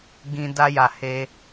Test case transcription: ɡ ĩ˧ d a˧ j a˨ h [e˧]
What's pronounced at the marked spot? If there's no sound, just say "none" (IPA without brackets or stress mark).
e˧